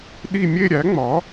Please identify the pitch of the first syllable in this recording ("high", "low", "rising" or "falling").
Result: falling